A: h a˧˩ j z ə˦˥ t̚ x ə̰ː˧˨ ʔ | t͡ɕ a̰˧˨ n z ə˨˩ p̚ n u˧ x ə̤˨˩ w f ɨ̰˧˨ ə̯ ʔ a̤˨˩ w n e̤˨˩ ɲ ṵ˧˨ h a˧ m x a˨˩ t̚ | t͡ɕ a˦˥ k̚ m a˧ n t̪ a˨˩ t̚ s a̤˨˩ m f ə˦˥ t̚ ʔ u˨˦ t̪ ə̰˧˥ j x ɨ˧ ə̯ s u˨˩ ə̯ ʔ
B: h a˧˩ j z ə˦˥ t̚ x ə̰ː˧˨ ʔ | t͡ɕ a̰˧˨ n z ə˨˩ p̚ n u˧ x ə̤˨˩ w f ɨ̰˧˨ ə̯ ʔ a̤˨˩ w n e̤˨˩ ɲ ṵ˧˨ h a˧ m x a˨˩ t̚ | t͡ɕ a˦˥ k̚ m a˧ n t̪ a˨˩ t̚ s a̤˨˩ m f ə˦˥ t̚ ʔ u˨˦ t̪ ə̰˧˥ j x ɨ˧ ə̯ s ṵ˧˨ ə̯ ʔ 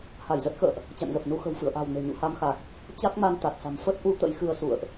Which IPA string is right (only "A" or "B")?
B